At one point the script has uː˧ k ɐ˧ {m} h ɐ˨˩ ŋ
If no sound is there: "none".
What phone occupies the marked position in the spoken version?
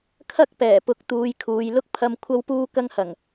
ŋ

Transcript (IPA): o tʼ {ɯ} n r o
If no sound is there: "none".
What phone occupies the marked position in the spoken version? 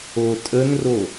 ə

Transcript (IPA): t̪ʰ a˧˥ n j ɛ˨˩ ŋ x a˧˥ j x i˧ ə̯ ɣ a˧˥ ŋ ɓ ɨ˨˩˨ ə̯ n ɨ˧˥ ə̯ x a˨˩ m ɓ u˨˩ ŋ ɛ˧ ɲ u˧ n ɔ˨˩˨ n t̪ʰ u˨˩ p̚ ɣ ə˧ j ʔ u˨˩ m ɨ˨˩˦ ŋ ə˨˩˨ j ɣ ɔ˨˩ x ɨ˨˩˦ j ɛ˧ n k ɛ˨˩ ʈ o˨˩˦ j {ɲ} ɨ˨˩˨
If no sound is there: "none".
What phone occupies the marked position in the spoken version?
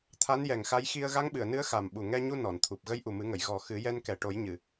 ɲ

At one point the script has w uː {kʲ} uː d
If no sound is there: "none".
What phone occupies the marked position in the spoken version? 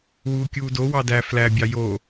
kʲ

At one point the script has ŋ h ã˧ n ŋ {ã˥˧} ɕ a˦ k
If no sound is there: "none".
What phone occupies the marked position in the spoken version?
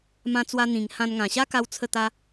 ã˨˩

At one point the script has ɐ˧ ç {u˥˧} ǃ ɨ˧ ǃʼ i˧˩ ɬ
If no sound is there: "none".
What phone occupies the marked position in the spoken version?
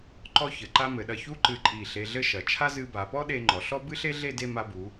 u˥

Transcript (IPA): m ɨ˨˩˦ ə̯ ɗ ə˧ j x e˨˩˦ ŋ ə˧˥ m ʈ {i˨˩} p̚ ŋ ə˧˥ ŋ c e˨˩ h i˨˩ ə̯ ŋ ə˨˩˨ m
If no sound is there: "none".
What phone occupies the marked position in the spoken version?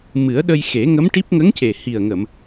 i˦˥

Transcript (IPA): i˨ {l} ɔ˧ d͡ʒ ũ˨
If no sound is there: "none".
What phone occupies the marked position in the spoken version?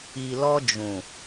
l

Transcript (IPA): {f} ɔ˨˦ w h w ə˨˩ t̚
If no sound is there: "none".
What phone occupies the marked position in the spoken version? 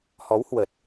h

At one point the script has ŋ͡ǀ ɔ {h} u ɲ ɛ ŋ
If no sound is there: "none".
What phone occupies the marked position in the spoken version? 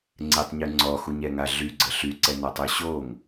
x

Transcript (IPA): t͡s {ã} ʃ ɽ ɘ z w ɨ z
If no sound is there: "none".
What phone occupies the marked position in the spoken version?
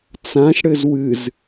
ã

